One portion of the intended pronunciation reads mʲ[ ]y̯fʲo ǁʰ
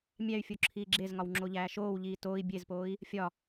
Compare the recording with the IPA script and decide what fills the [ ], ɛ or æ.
æ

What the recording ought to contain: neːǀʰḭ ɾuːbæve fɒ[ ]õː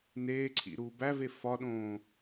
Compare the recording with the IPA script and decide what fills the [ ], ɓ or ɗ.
ɗ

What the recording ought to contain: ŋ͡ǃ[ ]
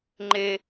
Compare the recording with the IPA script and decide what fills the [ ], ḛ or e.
e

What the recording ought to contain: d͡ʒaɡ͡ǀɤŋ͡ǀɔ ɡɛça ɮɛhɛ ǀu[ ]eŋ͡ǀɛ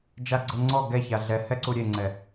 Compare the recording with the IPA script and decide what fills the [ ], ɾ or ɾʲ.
ɾʲ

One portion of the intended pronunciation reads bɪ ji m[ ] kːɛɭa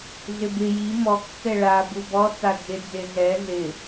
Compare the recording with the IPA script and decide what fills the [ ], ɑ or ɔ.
ɔ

